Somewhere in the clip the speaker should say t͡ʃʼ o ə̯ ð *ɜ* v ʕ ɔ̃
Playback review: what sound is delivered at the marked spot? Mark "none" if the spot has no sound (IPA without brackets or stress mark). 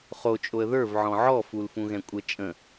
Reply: ə˞